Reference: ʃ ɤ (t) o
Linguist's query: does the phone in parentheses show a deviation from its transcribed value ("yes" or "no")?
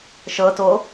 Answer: no